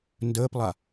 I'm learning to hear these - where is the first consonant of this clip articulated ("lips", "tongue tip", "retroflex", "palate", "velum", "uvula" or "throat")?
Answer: tongue tip